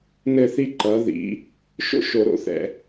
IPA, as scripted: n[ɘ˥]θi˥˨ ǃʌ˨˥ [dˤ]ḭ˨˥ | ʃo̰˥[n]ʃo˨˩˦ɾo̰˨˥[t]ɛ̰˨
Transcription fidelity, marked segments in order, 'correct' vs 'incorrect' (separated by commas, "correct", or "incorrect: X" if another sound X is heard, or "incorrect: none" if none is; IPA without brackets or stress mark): incorrect: ɘ˥˨, incorrect: ð, incorrect: none, incorrect: θ